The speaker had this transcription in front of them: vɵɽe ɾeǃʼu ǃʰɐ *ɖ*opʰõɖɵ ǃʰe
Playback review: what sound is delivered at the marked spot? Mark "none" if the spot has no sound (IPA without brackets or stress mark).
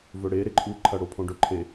ɽ